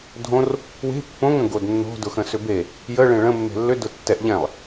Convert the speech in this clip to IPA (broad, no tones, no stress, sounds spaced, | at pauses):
dʱ õ r | w e̤ pː õ ŋ ə̃ ɡ o d nː o̤ d ʊ x ə̃ s ʏ b e | j ə ɭ ẽ ɭ ə̃ mː e̤ lː ʏ d ʊ tː ɛ ʔ ʎ ɛ̃ lˠ